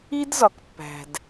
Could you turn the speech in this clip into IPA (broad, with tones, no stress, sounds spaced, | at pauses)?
i˦ d z ɒ˨ k pː æ̤˨ d